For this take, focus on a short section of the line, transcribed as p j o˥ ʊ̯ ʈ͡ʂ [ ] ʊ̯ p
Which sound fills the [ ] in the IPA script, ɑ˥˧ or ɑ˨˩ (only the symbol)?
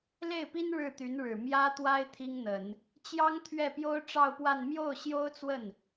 ɑ˥˧